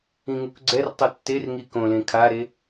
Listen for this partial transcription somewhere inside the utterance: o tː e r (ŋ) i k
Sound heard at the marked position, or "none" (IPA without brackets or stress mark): ŋ